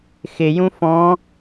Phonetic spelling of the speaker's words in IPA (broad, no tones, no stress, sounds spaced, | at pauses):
x ɪ j ũ f ɔ̃